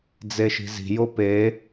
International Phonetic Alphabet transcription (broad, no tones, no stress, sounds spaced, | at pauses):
d͡z e ʃ i̤ z i̤ j o p e